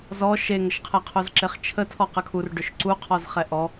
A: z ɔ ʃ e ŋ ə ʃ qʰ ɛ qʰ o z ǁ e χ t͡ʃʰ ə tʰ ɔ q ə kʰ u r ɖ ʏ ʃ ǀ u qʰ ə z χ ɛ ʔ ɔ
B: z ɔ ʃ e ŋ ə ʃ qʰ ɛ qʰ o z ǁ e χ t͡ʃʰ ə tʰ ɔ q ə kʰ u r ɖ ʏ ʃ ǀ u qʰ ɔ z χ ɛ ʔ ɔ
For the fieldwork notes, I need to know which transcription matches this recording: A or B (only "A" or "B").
B